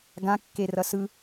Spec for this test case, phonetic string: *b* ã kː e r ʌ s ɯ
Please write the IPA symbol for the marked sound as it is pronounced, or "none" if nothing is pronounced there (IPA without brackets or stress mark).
ɡ